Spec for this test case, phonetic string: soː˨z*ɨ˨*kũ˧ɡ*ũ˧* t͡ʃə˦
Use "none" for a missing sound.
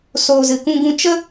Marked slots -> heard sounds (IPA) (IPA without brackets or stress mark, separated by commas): ɨ˨, ũ˧